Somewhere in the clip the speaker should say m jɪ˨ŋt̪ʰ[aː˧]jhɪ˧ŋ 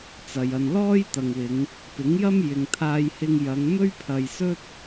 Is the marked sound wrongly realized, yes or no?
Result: no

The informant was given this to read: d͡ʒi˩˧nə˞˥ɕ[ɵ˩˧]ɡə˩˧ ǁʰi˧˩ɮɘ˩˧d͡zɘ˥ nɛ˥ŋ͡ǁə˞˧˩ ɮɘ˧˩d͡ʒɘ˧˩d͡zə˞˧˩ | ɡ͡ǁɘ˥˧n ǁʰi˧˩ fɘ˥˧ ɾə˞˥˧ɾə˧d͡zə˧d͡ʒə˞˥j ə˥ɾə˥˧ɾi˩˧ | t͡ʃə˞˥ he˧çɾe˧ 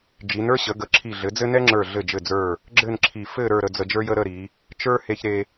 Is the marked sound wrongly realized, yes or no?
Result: yes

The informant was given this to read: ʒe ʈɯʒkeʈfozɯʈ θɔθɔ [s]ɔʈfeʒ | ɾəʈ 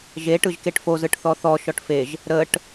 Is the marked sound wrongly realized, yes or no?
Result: yes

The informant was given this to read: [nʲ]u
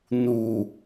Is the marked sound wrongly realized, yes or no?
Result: yes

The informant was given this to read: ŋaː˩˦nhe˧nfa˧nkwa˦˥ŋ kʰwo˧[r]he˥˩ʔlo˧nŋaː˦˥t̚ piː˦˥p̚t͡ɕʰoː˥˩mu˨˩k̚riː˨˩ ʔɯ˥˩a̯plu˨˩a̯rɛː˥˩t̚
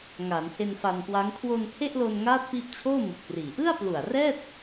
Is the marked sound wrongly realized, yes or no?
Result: yes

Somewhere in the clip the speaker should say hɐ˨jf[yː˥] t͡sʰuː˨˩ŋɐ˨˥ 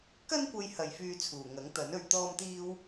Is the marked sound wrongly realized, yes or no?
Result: yes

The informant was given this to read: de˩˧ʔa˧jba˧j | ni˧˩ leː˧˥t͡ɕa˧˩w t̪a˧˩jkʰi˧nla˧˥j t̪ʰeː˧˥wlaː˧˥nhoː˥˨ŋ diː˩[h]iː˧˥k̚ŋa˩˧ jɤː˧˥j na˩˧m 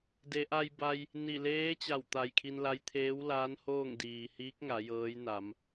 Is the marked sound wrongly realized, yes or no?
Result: no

